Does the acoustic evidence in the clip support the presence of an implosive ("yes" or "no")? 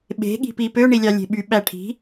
yes